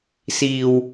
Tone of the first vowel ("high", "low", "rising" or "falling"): low